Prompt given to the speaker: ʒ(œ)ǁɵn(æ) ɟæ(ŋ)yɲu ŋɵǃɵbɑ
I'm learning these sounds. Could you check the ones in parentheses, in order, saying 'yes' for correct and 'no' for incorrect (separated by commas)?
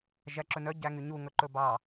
no, no, yes